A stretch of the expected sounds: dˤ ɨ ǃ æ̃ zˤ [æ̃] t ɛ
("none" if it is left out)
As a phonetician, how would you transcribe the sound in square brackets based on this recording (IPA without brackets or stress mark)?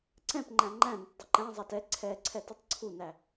æ